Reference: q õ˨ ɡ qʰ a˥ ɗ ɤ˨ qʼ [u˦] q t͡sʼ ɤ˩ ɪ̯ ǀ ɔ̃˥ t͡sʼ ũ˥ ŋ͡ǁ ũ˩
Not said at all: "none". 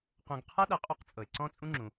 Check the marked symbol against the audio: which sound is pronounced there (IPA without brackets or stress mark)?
u˦